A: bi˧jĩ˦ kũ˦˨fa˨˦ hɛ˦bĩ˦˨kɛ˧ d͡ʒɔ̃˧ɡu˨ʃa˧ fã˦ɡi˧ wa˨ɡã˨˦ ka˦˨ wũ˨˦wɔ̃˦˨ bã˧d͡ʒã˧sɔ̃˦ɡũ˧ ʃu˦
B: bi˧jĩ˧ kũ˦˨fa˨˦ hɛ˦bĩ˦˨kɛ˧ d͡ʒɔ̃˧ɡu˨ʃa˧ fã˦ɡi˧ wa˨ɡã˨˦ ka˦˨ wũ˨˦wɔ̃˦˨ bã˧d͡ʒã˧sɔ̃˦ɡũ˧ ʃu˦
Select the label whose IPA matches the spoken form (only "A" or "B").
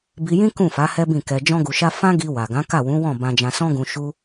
A